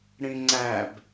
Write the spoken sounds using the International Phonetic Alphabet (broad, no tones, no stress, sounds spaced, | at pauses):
ɽ ĩ ŋ͡ǀ æ b